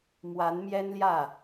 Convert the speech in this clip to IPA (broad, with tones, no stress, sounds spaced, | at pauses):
m w a˧˥ n m j ɛ˥ n l j ä˥˩